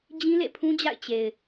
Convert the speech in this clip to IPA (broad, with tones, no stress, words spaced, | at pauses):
d͡ʑĩ˦lḛ˦˨pʰũ˦d͡ʑa̰˦˨ɪ̯ t͡ɕe˨ɪ̯